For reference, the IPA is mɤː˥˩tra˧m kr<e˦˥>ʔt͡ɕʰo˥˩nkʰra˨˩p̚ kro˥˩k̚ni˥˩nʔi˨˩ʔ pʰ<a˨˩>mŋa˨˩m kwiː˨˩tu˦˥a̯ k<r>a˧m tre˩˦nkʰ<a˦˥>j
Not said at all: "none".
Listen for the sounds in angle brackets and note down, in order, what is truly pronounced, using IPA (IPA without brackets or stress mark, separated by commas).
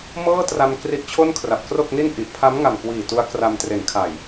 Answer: i˦˥, a˦˥, r, a˨˩